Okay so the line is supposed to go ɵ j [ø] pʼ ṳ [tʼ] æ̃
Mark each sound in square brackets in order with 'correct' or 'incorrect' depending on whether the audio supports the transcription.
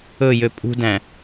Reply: correct, incorrect

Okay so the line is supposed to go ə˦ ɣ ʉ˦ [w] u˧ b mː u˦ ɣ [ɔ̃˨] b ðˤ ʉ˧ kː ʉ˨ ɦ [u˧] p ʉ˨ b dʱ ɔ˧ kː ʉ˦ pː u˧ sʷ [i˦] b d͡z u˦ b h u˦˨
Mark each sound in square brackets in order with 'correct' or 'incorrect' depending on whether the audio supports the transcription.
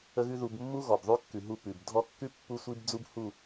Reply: incorrect, incorrect, correct, correct

